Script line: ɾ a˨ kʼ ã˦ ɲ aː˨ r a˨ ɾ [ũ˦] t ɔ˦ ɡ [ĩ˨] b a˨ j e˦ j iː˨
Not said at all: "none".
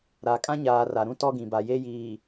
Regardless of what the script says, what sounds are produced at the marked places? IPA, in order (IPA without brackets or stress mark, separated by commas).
ũ˦, ĩ˨